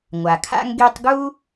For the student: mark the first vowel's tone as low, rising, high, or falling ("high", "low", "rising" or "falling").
low